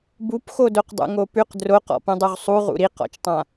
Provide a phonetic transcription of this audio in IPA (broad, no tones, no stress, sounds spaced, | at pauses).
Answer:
b u p x o d o q dˤ ṵ ŋ o p ʉ q d r o q ɔ̰ p ũ dˤ u ʁ sˤ u ʁ ṵ ɾ i q ɔ̰ t͡ʃ tˤ ã